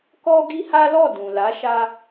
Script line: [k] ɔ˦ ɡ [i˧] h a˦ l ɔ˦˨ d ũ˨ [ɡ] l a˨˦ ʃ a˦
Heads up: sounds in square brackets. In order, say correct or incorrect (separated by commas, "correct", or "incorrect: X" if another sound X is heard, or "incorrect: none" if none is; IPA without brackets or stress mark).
correct, incorrect: i˦, incorrect: none